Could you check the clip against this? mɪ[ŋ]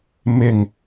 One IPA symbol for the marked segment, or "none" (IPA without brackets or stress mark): ŋ